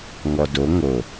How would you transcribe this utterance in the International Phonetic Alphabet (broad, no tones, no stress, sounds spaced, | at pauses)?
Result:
ŋ ɔ d o ŋ o